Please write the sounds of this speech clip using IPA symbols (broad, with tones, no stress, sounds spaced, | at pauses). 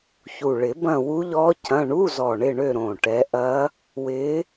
ç u˨˩ ɭ ɪ˨˩˦ b ɐ̃˦˨ w u˦˥ ʎ ɔ˦˥ c ɐ̃˧˥˧ ɳ u˧˥˧ z ɔ˨˩ ɳ ɪ˦˨ ɳ ø˦˨ ɾ õ˨˩ ʈ ɛ˨˦ ʔ ɐ˦˥ | w ɪ˨˦